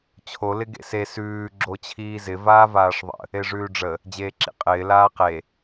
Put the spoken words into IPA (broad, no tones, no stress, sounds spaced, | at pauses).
t͡ɕʰ o l ɪ ɡ ḛ s e s ʉː ɡ͡ǁ o t͡ɕʰ iː z ɪ v aː v aː ʂ ðˤ ə̰ | e ʐ ʉː ɖ͡ʐ ə | d͡ʑ eː ǁ ḭ qʼ ɪː l aː q e